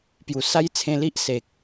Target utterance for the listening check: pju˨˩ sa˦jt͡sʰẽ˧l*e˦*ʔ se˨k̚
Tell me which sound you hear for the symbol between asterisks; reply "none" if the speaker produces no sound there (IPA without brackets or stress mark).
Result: i˦